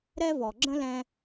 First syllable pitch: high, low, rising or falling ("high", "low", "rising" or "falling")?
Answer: high